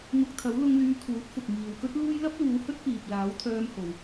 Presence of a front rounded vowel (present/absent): present